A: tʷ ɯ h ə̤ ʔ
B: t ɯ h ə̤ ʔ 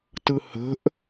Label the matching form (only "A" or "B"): B